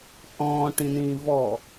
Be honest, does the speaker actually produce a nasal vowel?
yes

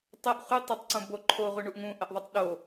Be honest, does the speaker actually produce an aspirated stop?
yes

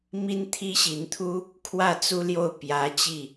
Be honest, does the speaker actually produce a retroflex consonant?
no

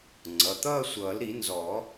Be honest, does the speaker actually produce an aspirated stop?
no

